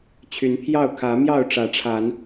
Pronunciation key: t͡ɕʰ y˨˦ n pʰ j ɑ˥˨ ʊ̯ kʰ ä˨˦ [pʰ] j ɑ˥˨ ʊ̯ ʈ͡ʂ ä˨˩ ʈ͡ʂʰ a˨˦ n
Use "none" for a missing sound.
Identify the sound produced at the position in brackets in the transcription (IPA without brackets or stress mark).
m